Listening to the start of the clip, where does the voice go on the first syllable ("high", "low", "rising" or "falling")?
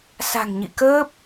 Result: low